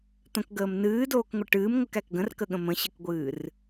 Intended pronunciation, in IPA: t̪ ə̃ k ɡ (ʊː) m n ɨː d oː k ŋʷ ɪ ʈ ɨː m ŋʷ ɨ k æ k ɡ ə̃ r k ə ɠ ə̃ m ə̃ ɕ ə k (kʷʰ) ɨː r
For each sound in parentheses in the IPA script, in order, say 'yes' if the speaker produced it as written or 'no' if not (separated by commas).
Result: no, no